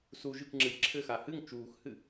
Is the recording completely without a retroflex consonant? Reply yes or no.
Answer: yes